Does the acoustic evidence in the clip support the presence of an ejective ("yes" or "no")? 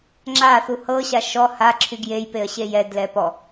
no